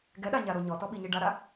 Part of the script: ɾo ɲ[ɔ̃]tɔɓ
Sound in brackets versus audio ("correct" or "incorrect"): incorrect